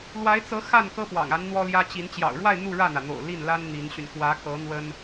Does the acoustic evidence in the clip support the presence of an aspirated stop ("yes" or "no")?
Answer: no